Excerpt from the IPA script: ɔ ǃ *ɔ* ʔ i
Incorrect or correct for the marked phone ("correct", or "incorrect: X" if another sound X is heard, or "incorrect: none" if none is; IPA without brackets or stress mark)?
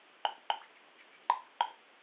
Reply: correct